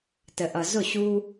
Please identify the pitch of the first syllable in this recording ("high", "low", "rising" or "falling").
low